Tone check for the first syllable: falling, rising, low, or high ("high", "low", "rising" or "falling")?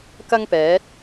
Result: high